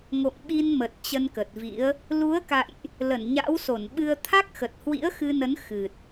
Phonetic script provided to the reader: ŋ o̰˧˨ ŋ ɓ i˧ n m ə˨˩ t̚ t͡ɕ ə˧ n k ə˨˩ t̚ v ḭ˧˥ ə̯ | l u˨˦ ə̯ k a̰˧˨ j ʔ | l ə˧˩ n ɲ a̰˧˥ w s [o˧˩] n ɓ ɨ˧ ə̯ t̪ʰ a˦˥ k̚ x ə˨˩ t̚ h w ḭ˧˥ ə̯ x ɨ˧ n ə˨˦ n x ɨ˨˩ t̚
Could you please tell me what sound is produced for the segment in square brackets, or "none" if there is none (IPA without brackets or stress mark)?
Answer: o˧˩